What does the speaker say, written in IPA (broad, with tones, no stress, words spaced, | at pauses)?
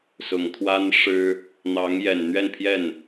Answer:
sʊ˨˩ŋt̪ʰwa˥n ʂɻ̩˥ | n̪ɑ˧˥ŋjɛ˨˩n n̪ɥɛ˥˧npʰjɛ˥˩n